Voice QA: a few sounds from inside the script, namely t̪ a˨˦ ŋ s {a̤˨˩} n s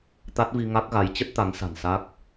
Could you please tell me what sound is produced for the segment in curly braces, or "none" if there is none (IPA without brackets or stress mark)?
a̤˨˩